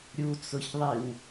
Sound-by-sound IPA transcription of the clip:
ɾʲut͡sʊçðˤiw

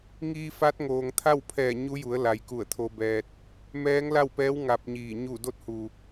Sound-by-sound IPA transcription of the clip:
ŋiː˧fa˧˥t̚ ŋoː˩ŋt̪ʰa˥˨wpʰɛː˧˩ ɲu˧˥ju˩˧ə̯ la˩˧jku˧˩ə̯t̪ʰo˧bɛː˧t̚ | mɛː˧˥ŋla˥˨wpɛː˧˥w ŋa˧p̚ɲiː˧˩ ɲu˧˩do˧˥t̚hu˩

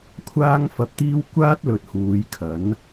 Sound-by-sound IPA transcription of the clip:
kʷʰaː˥ŋfɐ˧p̚t̪iː˥w kʷaː˥t̚lɵ˨t̚ huː˨˧jkʰɐ˨˥n

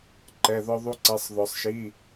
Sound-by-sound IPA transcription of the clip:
ǃɛ˧˥˧ðɔ˥ðˤu˥ǀɛ˧˥˧sˤ ðɔ˧sˤʃi˧˥˧

